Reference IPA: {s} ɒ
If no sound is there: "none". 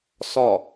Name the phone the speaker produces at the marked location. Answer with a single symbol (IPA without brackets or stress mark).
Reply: s